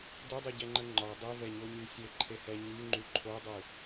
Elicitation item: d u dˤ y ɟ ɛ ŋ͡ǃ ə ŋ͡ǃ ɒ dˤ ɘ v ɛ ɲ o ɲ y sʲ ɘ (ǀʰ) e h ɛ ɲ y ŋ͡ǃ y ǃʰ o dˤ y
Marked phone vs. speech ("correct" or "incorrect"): incorrect